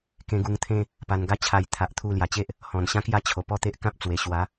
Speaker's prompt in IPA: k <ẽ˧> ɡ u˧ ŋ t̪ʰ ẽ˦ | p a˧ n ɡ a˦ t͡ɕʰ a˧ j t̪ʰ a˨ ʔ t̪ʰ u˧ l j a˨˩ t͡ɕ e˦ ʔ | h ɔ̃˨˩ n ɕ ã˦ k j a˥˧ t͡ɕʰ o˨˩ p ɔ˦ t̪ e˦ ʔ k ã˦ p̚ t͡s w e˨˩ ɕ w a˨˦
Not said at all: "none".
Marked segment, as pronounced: ẽ˧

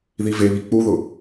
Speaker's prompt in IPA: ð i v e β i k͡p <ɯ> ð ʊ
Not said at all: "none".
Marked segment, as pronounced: u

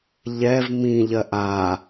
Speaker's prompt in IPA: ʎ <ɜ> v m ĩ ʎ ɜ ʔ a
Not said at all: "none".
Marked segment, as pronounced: ɛ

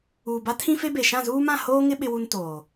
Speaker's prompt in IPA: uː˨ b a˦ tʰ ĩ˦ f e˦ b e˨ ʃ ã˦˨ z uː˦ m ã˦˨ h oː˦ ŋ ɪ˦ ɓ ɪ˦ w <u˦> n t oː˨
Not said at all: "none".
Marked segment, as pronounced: u˦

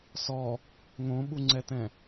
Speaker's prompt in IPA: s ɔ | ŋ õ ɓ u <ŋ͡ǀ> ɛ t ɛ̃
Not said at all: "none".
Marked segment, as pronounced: ŋ͡ǀ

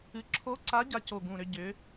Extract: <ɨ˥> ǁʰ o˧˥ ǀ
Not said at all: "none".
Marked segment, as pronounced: ɨ˧˥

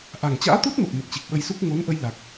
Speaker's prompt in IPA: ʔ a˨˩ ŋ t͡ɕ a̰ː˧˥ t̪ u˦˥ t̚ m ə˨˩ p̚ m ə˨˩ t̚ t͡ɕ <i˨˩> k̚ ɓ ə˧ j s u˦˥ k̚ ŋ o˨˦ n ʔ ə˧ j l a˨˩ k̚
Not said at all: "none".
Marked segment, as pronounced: i˨˩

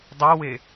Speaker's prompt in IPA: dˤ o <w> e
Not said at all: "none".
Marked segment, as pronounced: w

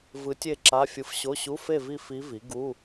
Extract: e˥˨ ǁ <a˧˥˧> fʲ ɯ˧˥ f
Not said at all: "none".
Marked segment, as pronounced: a˧˥˧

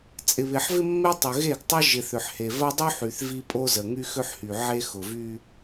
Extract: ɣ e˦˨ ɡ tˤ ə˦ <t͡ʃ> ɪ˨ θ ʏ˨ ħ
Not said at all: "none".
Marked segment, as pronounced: ʒ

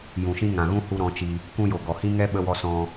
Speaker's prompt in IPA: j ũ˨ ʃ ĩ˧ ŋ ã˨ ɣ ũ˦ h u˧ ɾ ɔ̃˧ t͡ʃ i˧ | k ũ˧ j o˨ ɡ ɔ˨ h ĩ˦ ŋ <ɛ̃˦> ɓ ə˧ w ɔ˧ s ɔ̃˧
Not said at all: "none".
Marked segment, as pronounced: ɛ˦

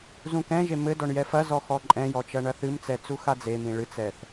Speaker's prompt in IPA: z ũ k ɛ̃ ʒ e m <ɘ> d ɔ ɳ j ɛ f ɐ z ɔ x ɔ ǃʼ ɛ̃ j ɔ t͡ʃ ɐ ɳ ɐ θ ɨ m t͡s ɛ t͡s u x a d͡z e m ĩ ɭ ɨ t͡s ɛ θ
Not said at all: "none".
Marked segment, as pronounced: ɘ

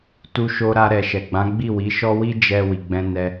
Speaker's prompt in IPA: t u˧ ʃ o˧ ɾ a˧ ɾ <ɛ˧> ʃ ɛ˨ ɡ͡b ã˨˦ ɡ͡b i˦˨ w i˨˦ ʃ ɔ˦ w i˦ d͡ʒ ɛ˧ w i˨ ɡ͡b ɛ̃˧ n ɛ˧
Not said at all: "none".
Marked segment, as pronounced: ɛ˨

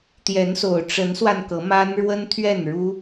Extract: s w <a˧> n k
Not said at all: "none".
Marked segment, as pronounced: a˧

